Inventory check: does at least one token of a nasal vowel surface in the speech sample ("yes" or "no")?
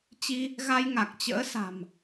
no